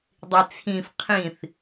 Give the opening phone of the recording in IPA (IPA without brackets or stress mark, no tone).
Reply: dˤ